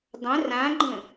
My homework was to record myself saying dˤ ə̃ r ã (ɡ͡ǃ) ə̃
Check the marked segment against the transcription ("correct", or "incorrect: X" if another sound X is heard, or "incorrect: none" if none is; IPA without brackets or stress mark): correct